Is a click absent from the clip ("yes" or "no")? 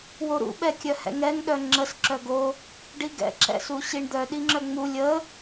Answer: no